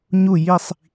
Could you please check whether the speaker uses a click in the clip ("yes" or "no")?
no